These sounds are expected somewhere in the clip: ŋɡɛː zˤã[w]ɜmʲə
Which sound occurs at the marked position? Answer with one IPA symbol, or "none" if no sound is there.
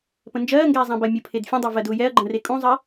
b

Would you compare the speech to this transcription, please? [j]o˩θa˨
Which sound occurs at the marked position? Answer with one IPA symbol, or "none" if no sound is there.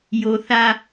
j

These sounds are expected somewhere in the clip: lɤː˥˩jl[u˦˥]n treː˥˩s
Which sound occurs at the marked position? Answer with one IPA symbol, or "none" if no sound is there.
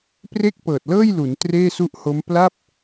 u˩˦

